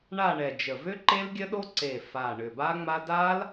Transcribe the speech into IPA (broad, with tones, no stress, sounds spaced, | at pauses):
ɳ a˦˨ ɳ ɛ˨˩ d͡ʒ ə˨˩ v ʏ˦˥ ǃ e˦˥ l ɡʲ ə˦˥ ɗ o˦˥ ǀ e˨˩ f a˨˩ ɳ ʏ˨˩ b a˦˥ ŋ͡m a˦˥ d a˦˥ l